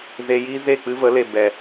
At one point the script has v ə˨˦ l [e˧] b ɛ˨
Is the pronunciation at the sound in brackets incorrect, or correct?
incorrect